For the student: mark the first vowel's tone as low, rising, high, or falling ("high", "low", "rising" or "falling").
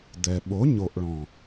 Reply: low